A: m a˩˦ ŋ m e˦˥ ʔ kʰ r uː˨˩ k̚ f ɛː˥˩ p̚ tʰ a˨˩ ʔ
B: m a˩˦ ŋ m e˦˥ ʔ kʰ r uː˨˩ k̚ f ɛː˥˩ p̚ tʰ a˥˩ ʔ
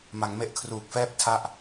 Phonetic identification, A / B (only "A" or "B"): B